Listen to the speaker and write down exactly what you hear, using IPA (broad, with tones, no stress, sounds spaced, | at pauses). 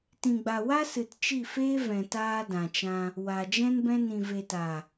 t ĩ˨ ɡ͡b a˨ w a˦ s ɨ˨ t t͡ʃ i˦˨ f eː˦ v ɛ̃˨ t aː˧ d ã˨ t͡ʃ ã˧ | w a˨ d͡ʒ ɛ̃˦ n b ɛ̃˦ n ĩ˨ v e˨ t a˨